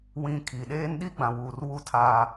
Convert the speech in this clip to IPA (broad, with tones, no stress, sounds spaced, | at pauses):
w ĩ˨ kʰ i˨ ɗ eː˦ n ɗ i˦ ɡ͡b ã˨ w uː˨ r w u˦ tʰ aː˦